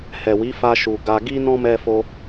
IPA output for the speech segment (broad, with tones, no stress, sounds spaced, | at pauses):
h ɛ˨ w i˨˦ f a˧ ʃ u˨ ɡ a˧ ɡ i˦ n ɔ̃˦ m ɛ˧ f o˧